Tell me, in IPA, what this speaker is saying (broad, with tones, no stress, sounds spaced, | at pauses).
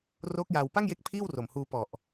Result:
r oː˦˥ k̚ j aː˧ w p a˥˩ ŋ j e˦˥ k̚ pʰ iː˥˩ w r o˨˩ m h uː˧ p ɔ˨˩ ʔ